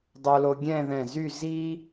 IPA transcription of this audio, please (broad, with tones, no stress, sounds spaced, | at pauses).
dˤ o˧ l o˧ ɡʲ ɛ̃˥˧ ð ɛ̃˧˩ z y˥˧ z i˥